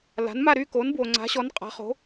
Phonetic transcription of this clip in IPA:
l a̤˩˥ n m a˥˨ ɾ y˥˨ k o˩˥ n b w o˩ ŋ͡ǀ a̤˩˥ ɕ ɔ˩˥ n qʼ a̤˩˥ χ o̤˩˥

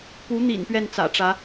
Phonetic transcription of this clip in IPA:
p u˧˥ n̪ ḭ˨˩ n p ɥ ɛ˥˩ n t͡s ä̰˨˩ ʈ͡ʂ ä˧˥

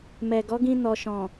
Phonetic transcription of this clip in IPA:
m ɛ˨ ɡ ɔ˨˦ ɡ ĩ˧ n ɔ˨ ʃ ɔ̃˨

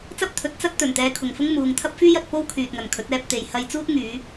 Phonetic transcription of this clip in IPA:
t͡s ɐ˥ p̚ t̪ʰ ɵ˨˥ t̚ t͡s ɐ˥ t̚ t̪ ɵ˨˩ n t̪ ɛː˧ kʰ ʊ˨ ŋ f ʊ˥ ŋ m uː˨ ŋ t̪ʰ ɐ˥ p̚ f yː˥ j ɐ˧ t̚ p o˥ w kʰ yː˨ t̚ ŋ ɐ˨ n kʰ ɵ˨˥ t̚ ɛː˧ p̚ t̪ e˨ j h ɐ˧ j t͡s uː˥ t̚ ŋ yː˨˧

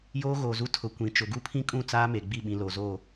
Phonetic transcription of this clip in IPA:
j oː˦ ɣ oː˨ z u˦ tʰ ʊ˨ kʷ ĩ˨ t͡ʃ ʊ˨ ɡ u˦ pʰ ĩ˦ kʼ ũ˦˨ t͡s aː˦ m e˨ ɡ͡b i˦˨ ɓ ĩ˨ l o˨ z oː˦˨

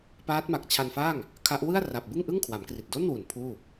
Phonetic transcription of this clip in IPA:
p aː˦˥ t̚ m a˨˩ k̚ t͡ɕʰ a˧ n f aː˥˩ ŋ | kʰ a˦˥ ʔ w ɯ˥˩ a̯ r a˨˩ p̚ b ɯ˥˩ ŋ ʔ ɯ˥˩ ŋ kʰ w a˩˦ m k r i˨˩ t̚ d o˥˩ n w u˨˩ n pʰ uː˥˩

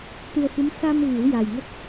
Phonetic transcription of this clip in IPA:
t̪ ɨ˧ ə̯ f ɨ˧˥ m s a˧ m ɣ i˨˩˦ w j a˨˩ j ŋ ə˦˥ k̚

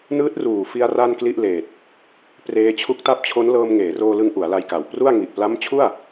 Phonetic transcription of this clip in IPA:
n ɯː˦˥ t̚ r uː˨˩ f i˧ a̯ r a˥˩ n k l i˥˩ ʔ l eː˨˩ t̚ | p r eː˧ t͡ɕʰ u˦˥ k̚ t a˦˥ p̚ t͡ɕʰ o˦˥ n l ɤː˧ m ŋ eː˩˦ r oː˧ l ɯ˧ ŋ ʔ u˩˦ a̯ l a˧ j k a˨˩ w p r u˥˩ a̯ ŋ i˨˩ ʔ p l a˦˥ m t͡ɕʰ u˥˩ a̯

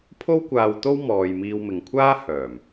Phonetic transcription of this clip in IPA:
pʰ o˥ w kʷ aː˧ w t̪ o˥ w m ɔː˧ j m iː˧ w m ɪ˨ ŋ kʷʰ aː˥ h œː˨˩ m

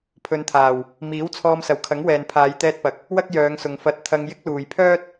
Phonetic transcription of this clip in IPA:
pʰ ɵ˨˧ n t̪ʰ aː˨˩ w | m iː˨˥ w t͡sʰ ɔː˧ m s ɐ˨ w kʰ ɐ˨˥ ŋ w ɛː˨ n pʰ aː˨˧ j t̪ ɛː˧ t̚ p ɐ˨ k̚ | w ɐ˥ k̚ j œː˨˧ ŋ s ʊ˨ ŋ f ɐ˧ t̚ t̪ʰ ɐ˧ ŋ j ɪ˥ k̚ l uː˨ j pʰ œː˥ t̚

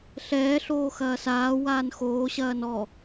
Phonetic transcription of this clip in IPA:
ɬ ɛː ɬ oː x ɐː s aː w aː n x oː ɕ ɐː n ɔ

